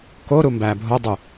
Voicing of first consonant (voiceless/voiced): voiceless